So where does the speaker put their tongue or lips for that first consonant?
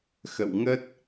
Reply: velum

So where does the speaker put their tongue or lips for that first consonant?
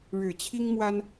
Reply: retroflex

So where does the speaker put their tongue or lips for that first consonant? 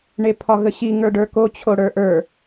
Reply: retroflex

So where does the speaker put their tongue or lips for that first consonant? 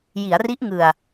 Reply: palate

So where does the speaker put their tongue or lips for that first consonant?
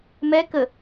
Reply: lips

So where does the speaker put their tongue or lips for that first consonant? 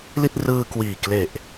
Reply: tongue tip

